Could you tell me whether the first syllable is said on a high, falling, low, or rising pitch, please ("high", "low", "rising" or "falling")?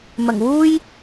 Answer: low